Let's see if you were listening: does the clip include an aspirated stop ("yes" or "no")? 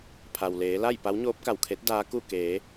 yes